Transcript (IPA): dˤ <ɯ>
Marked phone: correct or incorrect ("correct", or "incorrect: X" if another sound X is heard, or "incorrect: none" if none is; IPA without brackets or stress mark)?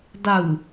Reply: correct